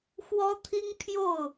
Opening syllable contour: high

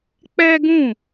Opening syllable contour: high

